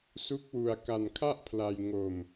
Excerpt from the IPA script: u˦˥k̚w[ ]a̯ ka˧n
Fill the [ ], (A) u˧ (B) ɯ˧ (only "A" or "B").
A